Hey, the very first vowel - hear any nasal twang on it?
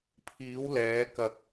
no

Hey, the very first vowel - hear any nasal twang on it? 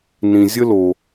yes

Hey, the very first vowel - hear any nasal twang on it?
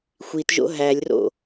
no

